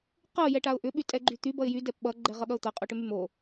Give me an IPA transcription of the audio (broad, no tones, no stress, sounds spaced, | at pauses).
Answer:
q ɤ j ɛ ʈ a ʊ̯ ʔ ʏ ɓ y tʼ ɛ ɡ͡ǃ y t̪ y b ʌ ɪ̯ j y d ɛ p ɓ ʌ ɡ͡ǃ ɛ ʁ ʌ ɠ ʌ ʊ̯ t̪ ʌ qʼ o ʈ ʏ m y m o